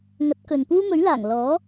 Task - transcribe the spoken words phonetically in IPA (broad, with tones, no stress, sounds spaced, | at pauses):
ŋ ɐ˨˥ t̚ k ɵ˨ n p uː˥ m ɵ˨˥ ɥ l aː˨˩ ŋ l ɔː˨˥